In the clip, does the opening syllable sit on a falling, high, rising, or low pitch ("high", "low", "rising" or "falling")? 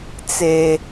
high